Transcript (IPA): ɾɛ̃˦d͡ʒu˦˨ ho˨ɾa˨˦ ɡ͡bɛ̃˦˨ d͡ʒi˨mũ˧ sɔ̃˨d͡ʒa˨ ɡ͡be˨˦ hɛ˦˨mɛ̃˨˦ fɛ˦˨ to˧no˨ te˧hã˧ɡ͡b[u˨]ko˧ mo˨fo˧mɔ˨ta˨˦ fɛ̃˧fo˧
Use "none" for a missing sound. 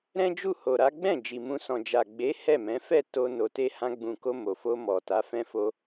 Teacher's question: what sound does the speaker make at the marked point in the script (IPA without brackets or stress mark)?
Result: ũ˨